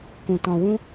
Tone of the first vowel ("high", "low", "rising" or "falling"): low